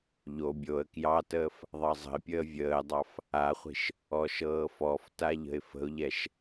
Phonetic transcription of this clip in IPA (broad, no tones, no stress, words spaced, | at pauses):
ʎo bʲoə̯ kjɑtəːf | ðˤɑzˤə̤ɪ̯pʲəː vʲəːdˤɑf | aχʷi̤ʃ | ɔʃɤːfɔfta ʎə̤ɪ̯fə̤ʊ̯ʎɛʃ